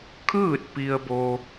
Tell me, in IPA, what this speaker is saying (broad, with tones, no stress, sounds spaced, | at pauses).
kʰ ɯː˥˨ t̚ p i˧ ə̯ b o˧